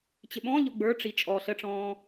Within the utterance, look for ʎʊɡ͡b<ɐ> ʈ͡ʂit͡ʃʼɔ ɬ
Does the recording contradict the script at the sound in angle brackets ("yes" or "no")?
yes